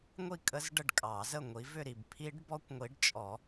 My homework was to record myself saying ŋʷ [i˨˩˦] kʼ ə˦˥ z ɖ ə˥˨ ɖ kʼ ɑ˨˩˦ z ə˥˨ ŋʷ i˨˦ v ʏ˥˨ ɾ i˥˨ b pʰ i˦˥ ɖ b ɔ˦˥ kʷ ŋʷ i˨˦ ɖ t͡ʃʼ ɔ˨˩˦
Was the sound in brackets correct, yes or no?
no